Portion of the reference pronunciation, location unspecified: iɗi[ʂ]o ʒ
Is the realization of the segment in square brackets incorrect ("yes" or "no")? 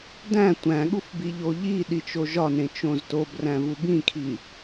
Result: yes